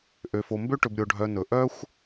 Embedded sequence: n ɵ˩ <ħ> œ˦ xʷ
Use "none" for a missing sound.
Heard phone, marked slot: ʔ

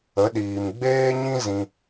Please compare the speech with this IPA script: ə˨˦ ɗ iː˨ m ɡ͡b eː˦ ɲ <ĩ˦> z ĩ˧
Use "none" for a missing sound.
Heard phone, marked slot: ĩ˦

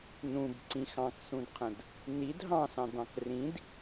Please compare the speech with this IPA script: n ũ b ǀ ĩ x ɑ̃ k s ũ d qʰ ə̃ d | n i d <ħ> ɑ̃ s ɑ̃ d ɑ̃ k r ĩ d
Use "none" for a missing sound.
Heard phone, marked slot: ɦ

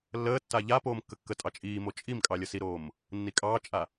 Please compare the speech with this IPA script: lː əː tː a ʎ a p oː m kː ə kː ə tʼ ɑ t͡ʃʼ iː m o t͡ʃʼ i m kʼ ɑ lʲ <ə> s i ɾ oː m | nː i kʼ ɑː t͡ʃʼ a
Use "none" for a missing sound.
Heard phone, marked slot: ə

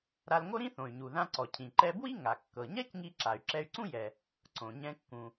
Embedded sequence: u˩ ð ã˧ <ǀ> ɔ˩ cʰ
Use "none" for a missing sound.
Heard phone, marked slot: ǀ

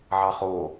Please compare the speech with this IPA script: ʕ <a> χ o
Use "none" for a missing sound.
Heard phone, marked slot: ɑ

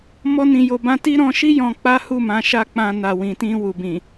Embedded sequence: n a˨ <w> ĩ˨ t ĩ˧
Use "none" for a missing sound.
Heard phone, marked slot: w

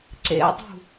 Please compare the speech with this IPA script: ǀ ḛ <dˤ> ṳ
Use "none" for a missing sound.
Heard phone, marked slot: dˤ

